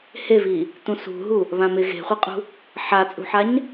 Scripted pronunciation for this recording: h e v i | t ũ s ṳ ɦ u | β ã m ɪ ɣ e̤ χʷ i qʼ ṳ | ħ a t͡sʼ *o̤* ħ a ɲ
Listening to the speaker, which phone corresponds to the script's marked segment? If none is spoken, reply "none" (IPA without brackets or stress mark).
ṳ